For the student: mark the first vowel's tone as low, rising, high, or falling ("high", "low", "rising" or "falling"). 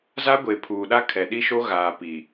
high